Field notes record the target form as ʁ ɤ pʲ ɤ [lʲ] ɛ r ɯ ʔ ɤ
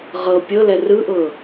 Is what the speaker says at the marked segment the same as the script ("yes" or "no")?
no